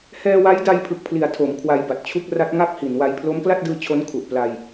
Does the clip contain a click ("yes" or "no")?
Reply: no